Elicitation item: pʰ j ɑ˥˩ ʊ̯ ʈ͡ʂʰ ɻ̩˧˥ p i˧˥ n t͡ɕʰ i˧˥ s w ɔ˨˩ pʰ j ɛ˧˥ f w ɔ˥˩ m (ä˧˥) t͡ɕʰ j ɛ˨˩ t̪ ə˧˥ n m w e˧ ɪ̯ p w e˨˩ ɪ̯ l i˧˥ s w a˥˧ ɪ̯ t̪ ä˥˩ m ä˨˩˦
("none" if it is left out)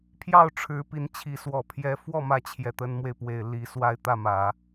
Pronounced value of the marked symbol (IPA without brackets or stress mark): ä˧˥